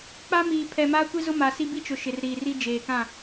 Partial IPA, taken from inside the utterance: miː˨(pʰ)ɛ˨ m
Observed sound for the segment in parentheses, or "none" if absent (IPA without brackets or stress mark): pʰ